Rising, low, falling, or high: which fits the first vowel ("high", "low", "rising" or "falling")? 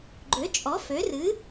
rising